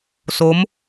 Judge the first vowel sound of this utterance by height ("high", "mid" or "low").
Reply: mid